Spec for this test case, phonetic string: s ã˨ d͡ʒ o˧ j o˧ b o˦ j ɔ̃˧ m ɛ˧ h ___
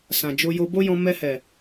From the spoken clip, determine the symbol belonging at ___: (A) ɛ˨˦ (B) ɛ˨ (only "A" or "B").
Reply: B